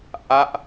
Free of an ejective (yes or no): yes